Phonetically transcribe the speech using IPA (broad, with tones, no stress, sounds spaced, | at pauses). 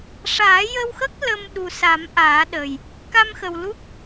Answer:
ʂ aː˨˩˦ j ə˧ w x ə˦˥ k̚ l ə˧ m ɗ u˨˩ s a˨˩˦ m ʔ aː˨˩˦ ɗ ə˨˩ j | k a˧ m x ə˨˩ w l u˦˥ k̚